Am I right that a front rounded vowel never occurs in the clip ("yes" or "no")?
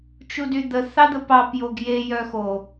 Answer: no